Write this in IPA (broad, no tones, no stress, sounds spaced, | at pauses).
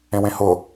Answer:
ẽ w ẽ h ʊ